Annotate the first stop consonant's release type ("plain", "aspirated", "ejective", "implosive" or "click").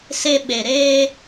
implosive